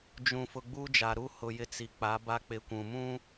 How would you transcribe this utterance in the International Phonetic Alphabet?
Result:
d͡ʒ ũ˨ f ʊ˨ ɡ͡b u˦ d͡ʒ a˨ ɾ u˦ h ʊ˨ j ɪ˦ t͡s i˨ k͡p a˨˦ b a˦ k͡p ɪ˦ kʷ ũ˨ m ũ˦

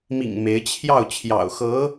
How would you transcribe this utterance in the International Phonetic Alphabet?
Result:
m ḭ˨˩ ŋ m e˧˥ ɪ̯ t͡ɕʰ j ɑ˥˩ ʊ̯ t͡ɕʰ j ɑ̰˨˩ ʊ̯ x ɤ˧˥

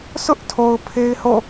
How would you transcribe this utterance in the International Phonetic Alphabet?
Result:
s ʊ˦ ʔ tʰ o˨ ʊ̯ pʰ e˦ ɪ̯ h o̰˦˨

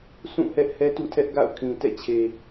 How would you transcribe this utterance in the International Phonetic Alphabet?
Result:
sʰ ũ˦˨ h ɛ˦ ʔ h ɛ˦ t ṵ˦˨ tʰ ɛ˦ ʔ ɡ a̰˦˨ ʊ̯ kʰ ĩ˨ t ɛ̰˦˨ t͡ɕʰ e˨

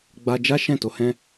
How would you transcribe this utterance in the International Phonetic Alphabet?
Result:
ɡ͡b a˧ d͡ʒ a˦ ʃ ɛ̃˦˨ t o˧ h ɛ̃˦

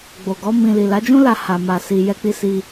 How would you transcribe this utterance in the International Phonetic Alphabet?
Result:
ɡ͡b o˨ ɡ ɔ˨˦ m ĩ˧ l i˨ l a˨˦ d͡ʒ ũ˦ l a˧ h a˨ m a˧ s i˧ j ɛ˧ k͡p i˧ s i˧

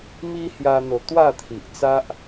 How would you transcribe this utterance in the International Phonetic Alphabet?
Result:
m i˦ h j a˧ n̪ o˨˩ t̪ w a˥˧ t̪ʰ i˨ ʔ t͡s a˦ ʔ

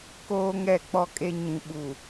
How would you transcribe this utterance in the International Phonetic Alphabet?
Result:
k oː˦ ŋ ɛ˦˨ k͡p ɔ˦ kʼ e˦ ɲ ĩ˨ ɓ u˨

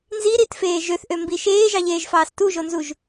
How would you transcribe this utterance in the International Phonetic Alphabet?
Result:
n z i ɾ i t f eː ʒ ø θ ʔ ø m b i ʃ eː ʒ ɑ ʎ eː ʒ f ɑː s t u ʒ o n z u ʒ

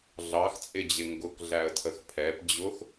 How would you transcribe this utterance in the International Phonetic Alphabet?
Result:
ɮ ɑ x t͡sʼ ɪ d͡ʑ ɪ ŋ ɡ ʊ k ɮ æ ə̯ tʰ ə x pʰ ɛ p d͡ʑ ʊ x

